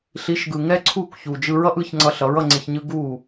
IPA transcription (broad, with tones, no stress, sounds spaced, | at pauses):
ɬ i˩˥ ʃ ɡ ɯ˩ ŋ ɛ˥ ǀʰ u˥˩ k ç u˩ d͡ʒ ɯ˧ ɹ ʌ˥ ʔ ɯ˩˥ ç ŋ͡ǀ ʌ˧ ɬ ʌ˩˥ ɹ ʌ˧ ŋ͡ǀ e˧ ç ɲ ɯ˥ ɡ u˥˩